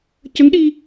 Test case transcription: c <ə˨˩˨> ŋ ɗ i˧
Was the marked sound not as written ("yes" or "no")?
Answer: yes